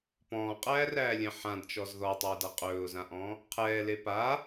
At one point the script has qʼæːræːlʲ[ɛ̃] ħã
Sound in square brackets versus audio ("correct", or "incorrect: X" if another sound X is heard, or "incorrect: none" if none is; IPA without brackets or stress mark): correct